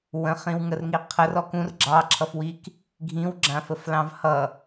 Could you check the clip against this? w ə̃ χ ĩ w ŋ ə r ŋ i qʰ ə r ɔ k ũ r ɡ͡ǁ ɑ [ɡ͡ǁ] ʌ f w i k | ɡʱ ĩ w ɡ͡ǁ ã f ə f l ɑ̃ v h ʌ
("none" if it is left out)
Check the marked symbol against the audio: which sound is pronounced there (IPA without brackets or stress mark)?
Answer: ǁʰ